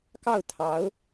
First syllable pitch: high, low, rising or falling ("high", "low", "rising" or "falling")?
falling